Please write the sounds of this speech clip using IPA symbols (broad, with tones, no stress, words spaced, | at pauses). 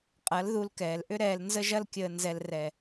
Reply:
qʼɐ˨˦lðu˧lkɛː˨lʔʏ˦ ɾɛː˨lnzə˧ʒɐ˧lkʲəː˨ nzɛ˨lrɛ˨